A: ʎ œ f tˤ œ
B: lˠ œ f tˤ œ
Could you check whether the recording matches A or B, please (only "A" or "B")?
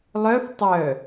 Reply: B